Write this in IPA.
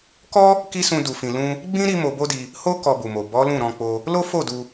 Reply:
kɔ˦ | ki˦sũ˧ du˨fĩ˨lũ˧ | ɡ͡bĩ˦ ɾi˦mo˧bo˦di˧ | ho˦ kɔ˧bu˨mo˨ bɔ˨˦lũ˦˨ ɾɔ̃˧k͡po˧ | lo˦fo˦˨ du˧

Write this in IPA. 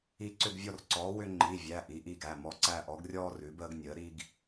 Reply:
i˦˨ ǀʏ˦˨ɡvʲɔ˦˨rǀɔː˩˥ wʏ˥ ŋ͡ǃi˩˧˩vʲæ˩˧˩ ʔi˩˥ʔi˦˨ɡæ˩˧˩ mɔ˩˥ǀæ˦˨ʔɔ˩˥ɡrʲɔː˥ rʉ˩˥bəː˥ɡnʲəː˩˥ ɾi˥ɡ

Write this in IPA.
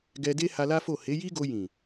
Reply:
ɡɛ˧de˦ ha˧la˦fo˦˨ he˨˦ji˦ɡo˧ jĩ˨

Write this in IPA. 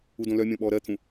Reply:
udõlœmʲɔ̃ ɓɔːɾɜt̪ʰũ

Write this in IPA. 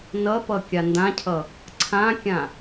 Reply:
nʌpʌ kʲandãcʰʌ | ǀʰãkʲã

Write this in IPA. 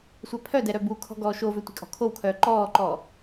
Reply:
sʷɛpʰœdɛ ɾœbukʰɔ̤ ɡɔːʃovø tʷi̤kʼɔ̤kʰowkʰœː ǃɔːǃɔː

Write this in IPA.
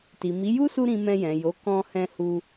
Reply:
ti˨mi˨˦ ju˦su˧ ɾĩ˧mɛ̃˧jɛ̃˨jo˨˦ kɔ̃˧hɛ̃˧hu˧

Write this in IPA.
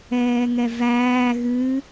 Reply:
ɛːŋɛvæː ɣɨ

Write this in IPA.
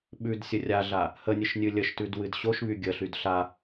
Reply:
ɓʉd sʲərʲaɮa | hənʲɨʃ nʲɨlʲəʃtʉd wɨdɕoʃβy ɡʲəɬyd ɬa

